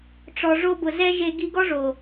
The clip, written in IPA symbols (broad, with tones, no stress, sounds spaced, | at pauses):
ʈ͡ʂ ɔ˨ ʐ o˦ b ʊ˨ z ɛ˦ ʒ e˧ ɡ i˧ ɡ ɔ˦ ʐ o˨